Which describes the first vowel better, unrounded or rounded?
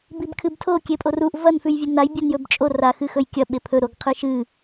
unrounded